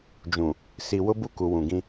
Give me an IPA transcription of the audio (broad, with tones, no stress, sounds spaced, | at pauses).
d͡ʒ ũ˨ | s i˨ w ʊ˦ b u˦ k u˨ w ũ˨ ɡ ĩ˦